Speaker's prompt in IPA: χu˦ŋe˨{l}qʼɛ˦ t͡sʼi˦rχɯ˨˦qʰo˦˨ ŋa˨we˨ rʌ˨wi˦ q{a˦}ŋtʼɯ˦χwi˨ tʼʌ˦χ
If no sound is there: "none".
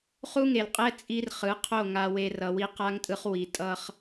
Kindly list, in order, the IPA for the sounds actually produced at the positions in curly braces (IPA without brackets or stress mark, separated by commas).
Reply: l, a˦